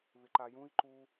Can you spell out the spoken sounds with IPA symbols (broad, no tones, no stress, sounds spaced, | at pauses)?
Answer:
β ɪ ǃ a j ũ i̯ ǃ u